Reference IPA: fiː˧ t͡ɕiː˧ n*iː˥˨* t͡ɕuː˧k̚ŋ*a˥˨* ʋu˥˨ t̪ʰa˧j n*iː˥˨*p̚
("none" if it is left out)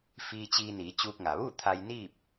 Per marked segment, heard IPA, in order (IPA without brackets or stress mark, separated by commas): iː˩˧, a˩, iː˥˨